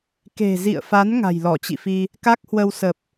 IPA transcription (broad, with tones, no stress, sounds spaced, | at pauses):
k e̤˨˩ z ḭ˧˨ ə̯ f a˨˦ n ŋ a̤˨˩ j l ɔ˧˩ t͡ɕ ḭ˧˨ f i˧ | k a˦˥ k̚ h w ə˧ w s ə˨˩ p̚